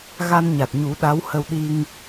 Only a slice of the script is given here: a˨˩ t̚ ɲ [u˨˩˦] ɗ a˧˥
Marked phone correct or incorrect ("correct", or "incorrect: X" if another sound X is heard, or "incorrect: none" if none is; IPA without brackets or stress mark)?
correct